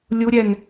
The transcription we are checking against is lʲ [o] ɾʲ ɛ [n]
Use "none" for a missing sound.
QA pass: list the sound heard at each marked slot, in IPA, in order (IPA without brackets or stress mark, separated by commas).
u, n